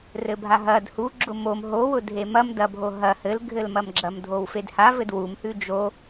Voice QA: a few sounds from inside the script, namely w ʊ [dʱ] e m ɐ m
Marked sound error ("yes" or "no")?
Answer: no